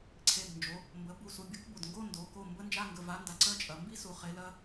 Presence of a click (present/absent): present